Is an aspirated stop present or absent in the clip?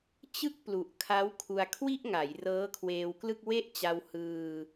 present